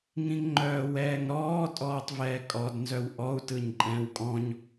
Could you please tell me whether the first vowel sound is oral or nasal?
nasal